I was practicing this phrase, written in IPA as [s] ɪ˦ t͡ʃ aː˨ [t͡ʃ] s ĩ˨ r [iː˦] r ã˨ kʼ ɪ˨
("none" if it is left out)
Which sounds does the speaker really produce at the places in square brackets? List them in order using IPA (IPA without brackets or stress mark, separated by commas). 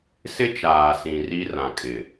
s, none, i˦